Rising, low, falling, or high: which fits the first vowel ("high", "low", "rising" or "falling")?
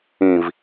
low